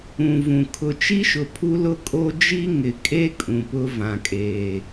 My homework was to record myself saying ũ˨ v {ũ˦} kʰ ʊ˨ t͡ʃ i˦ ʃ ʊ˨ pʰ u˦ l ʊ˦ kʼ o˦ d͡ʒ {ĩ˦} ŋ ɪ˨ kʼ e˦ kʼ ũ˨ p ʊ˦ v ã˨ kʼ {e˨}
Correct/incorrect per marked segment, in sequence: incorrect, incorrect, incorrect

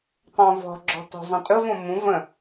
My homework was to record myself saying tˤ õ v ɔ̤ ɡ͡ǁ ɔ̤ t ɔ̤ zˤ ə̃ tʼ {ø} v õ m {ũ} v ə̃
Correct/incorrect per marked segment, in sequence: incorrect, correct

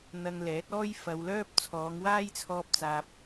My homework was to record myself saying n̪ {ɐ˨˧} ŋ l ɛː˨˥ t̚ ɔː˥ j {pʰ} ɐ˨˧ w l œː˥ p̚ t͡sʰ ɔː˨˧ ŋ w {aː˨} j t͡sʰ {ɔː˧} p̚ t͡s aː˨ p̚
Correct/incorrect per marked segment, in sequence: incorrect, incorrect, incorrect, correct

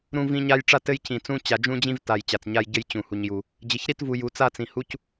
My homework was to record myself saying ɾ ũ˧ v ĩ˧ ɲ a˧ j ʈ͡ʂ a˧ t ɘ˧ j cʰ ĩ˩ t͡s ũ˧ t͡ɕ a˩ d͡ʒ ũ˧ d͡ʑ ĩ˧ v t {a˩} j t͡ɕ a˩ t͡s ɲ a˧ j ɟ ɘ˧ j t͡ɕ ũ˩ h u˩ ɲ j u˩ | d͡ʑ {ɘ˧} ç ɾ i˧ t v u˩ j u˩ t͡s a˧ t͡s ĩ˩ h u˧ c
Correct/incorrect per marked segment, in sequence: correct, incorrect

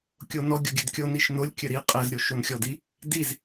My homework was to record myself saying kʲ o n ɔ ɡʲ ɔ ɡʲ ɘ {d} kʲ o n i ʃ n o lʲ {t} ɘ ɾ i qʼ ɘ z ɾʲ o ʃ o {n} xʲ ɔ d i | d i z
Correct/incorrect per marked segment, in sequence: correct, incorrect, correct

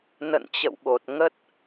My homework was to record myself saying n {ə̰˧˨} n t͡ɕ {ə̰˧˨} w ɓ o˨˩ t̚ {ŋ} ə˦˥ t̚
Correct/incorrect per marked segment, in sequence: correct, correct, correct

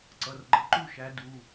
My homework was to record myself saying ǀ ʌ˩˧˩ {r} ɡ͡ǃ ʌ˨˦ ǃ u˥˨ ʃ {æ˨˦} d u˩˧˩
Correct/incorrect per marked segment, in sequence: correct, correct

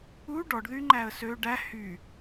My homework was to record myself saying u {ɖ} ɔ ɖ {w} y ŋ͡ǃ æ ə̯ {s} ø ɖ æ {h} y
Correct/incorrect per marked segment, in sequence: correct, incorrect, correct, correct

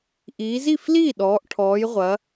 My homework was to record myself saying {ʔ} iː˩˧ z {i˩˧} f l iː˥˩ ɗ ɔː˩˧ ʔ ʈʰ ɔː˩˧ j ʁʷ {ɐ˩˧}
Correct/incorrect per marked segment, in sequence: correct, incorrect, correct

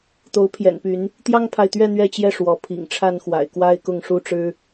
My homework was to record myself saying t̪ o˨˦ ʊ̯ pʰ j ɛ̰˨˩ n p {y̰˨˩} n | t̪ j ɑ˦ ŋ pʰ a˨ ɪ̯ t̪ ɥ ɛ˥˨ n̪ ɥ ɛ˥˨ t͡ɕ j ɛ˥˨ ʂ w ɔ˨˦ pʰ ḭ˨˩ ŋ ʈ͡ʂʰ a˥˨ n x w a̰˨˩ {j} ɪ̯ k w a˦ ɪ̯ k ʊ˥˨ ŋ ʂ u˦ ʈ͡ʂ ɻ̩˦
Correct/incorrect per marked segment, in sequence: incorrect, incorrect

